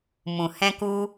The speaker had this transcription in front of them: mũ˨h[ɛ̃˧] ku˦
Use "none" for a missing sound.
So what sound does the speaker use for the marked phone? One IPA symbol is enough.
ɛ̃˧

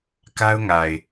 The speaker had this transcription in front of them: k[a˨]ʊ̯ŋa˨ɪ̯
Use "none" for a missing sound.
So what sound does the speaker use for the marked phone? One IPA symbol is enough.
a˦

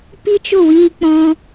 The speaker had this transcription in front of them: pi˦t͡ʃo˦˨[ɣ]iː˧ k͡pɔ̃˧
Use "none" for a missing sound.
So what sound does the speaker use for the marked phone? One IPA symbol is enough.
w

